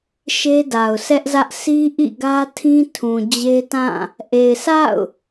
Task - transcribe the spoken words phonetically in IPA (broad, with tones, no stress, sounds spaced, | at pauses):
ʃ e˦ d a˨ ʊ̯ sʰ ɛ˦ ʔ z ä˦ ʔ sʰ i˦ ʔ ḭ˦˨ ɡ ä˦ tʰ ĩ˦ tʰ ũ˨ d͡ʑ e˦ t ã˦˨ | ʔ e˨ ɪ̯ s a̰˦˨ ʊ̯